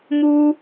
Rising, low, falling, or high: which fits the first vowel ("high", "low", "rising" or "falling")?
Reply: high